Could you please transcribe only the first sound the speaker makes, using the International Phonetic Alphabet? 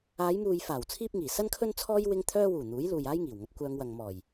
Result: aː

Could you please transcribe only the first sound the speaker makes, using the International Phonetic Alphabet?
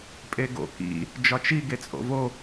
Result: pʼ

